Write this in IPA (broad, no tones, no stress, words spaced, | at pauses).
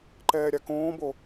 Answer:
ǃɛːɾʲakõːbo